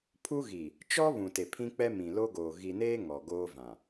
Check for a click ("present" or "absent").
absent